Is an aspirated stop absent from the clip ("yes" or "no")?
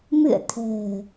no